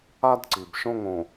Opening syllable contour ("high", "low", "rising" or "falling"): high